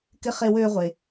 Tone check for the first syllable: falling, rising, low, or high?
high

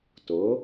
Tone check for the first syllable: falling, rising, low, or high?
rising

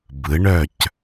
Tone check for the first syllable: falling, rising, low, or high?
rising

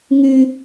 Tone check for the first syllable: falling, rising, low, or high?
low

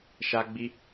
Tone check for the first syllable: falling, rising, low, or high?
high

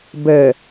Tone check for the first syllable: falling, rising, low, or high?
low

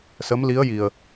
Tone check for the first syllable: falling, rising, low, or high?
rising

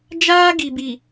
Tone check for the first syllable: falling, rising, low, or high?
high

